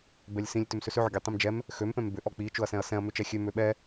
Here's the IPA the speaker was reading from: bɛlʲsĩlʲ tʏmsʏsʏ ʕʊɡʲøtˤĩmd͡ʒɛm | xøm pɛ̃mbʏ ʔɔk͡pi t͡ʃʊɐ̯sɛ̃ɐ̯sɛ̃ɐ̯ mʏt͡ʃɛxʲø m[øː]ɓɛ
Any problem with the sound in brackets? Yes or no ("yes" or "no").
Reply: yes